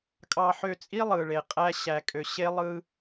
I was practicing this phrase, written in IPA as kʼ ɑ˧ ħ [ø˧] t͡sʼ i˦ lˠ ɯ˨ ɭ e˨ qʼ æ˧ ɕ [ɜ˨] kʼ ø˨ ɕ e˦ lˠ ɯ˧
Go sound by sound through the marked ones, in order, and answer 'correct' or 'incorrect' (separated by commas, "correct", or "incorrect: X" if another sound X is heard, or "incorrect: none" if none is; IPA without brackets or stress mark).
correct, incorrect: æ˨